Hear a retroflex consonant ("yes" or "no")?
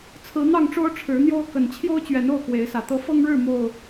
yes